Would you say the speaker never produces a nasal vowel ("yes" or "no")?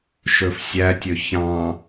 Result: no